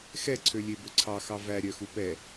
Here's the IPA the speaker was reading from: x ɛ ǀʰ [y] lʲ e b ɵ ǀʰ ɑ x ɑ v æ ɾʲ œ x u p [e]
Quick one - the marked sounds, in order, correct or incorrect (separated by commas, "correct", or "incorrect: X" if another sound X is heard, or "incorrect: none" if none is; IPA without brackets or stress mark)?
incorrect: ø, incorrect: ɛ